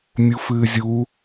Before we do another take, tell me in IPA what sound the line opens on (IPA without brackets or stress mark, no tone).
mʲ